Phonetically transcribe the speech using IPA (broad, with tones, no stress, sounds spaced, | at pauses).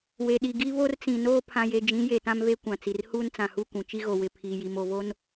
w e˨ ɗ i˨ ɡ i˦ β o˦ r t͡s ĩ˨ n oː˦ pʰ ã˨ j e˨ d͡ʒ ĩ˨˦ j e˨ t ã˦ m v e˦ kʷ ã˨ t͡s i˨ r h uː˦ n t͡s ã˨ h u˦˨ kʷ ũ˨ t͡ʃ i˦ ɣ o˨ w ɪ˨ pʰ iː˨ j i˨ m o˨ v o˦ n